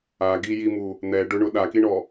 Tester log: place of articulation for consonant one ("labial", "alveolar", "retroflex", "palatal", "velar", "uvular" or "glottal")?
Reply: velar